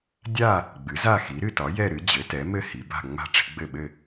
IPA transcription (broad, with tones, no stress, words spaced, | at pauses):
dʲa˥˨ | ɡ͡bɨ˩˥za˥˨xi˩˥ ɾɨ˥˨tɒ˩˥ jɛ˥˨ɾɨ˩˥ d͡ʑɘ˩˥tɛ˩˥mɘ˥˨ hi˩˥ba̤˥˨ŋ͡ma̤˥˨ ʈ͡ʂi̤˩˥ɡ͡bɘ˥˨ɓɘ˥˨